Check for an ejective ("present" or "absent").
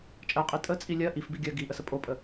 present